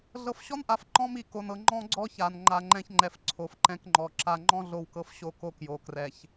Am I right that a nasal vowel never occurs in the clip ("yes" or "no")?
no